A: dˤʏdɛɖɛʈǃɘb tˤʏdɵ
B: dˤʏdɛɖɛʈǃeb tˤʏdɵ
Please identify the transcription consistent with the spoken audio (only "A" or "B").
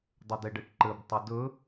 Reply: A